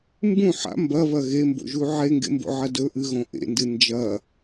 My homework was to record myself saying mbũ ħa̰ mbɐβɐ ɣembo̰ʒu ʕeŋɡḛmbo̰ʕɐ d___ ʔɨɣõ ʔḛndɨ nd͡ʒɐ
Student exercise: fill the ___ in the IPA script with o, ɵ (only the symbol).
ɵ